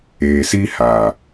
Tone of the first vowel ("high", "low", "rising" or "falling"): low